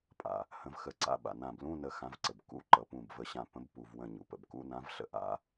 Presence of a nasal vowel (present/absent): present